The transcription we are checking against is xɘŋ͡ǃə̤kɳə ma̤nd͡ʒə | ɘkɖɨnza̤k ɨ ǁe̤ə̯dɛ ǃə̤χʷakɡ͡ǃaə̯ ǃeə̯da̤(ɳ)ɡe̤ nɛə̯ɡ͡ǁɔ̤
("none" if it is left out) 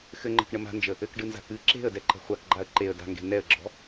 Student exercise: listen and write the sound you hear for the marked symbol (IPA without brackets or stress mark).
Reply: ŋ